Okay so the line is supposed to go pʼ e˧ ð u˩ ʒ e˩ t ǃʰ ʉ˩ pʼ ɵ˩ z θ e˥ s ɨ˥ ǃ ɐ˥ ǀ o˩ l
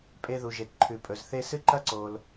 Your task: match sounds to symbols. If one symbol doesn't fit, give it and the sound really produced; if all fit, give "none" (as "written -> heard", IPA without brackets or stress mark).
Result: none